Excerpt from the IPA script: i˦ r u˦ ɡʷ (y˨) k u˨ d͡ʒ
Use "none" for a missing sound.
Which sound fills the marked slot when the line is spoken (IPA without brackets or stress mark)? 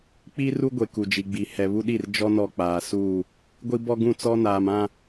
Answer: e˨